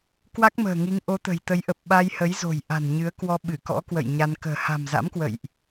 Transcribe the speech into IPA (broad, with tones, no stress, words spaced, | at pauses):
kwa˦˥k̚mə̤ː˨˩ŋi˨˦ŋ ʔo˨˦t̪ə̤˨˩jt̪ə˨˦jʔə˨˩p̚ ɓa˧jhə˨˦jzo̤˨˩j ʔa̤˨˩nɲɨ˨˦ə̯kwɔ˧ ɓɨ˧˩kɔ̰˧˥kwə̰˧˨j ɲa˧n kə̤ː˨˩ ha̤˨˩mza̰˧˥mkwə̰˧˨jʔ